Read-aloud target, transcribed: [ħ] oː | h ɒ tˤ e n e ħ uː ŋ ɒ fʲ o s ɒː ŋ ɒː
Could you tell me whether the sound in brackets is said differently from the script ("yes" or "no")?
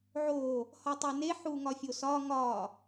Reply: yes